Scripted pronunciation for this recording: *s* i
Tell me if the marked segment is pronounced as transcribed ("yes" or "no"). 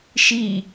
no